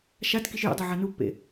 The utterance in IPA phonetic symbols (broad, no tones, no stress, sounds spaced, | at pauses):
ʃ a t k i ʃ j ṵ dˤ o ʕ a n u pː ḛ